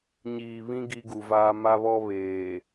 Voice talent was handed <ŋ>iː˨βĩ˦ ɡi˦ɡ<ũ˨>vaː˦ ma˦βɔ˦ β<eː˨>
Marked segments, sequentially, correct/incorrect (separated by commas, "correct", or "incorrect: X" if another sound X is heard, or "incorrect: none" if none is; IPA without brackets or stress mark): incorrect: ɲ, incorrect: u˨, correct